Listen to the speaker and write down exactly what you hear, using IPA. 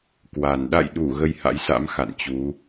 k w a˨˩ n ɗ a̰˧˨ j ɗ u˧˩ ɣ ə˧ j h a̰˧˥ j s a̰˧˥ m x a̰˧˨ n t͡ɕ u˨˦

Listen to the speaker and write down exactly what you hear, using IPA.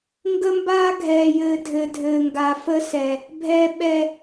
ŋ ɡ ə˦ m b aː˦ ɡʱ ɛː˨ j ɘː˨ dʱ ɘ˨ dʱ ɘː˨ ŋ ɡ a˨ f ə˦ s ɛ˨ | bʱ ɛ˨ ɓ ɛ˨

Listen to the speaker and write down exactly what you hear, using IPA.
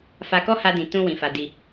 f a˧ k ɔ˦ h a˧ d ĩ˨ t ũ˧ w ĩ˨ f a˨ d i˨

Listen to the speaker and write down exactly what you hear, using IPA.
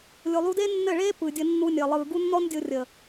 lʲ o˨ lˠ u˧ d e˦ nː ɘ˦˨ ɭ eː˦ p ɯː˨ dʲ ə˧ nː u˧ nʲ əː˨ lˠ ɯː˨ ɡ u˦ nː ɔ˦ n dʲ o˧ rʲ ə˨

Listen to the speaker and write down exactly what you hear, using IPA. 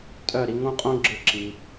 tʼ œ˦˨ ɾ i˧ ŋ õ˦ qʼ õ˦ ɡ͡ǁ ɯ˧ ǁ i˧

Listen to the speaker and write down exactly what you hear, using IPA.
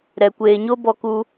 ɾ ɛ˨ kʷ eː˨ ɲ o˦ b ɔ˧ k u˧

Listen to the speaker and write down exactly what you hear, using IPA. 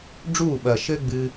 ɖ͡ʐ uː˦˨ ɓ ɐː˨ ʃ ɘː˦ ɡ͡b ɨː˧

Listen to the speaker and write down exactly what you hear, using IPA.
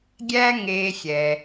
ɡʲ æ˥ ŋ eː˧ xʲ ɛ˩

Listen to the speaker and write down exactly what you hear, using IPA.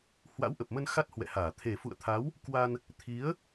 h w a̰˧˥ w ʔ ə˨˩ p̚ m ə˧ n x a˦˥ t̚ h w ɛ̰˧˨ h aː˧˩ t̪ʰ e˨˩ f ṵ˧˨ ə̯ t̪ʰ a˨˦ w | k w a˧ n | t̪ʰ i˨˦ ə̯

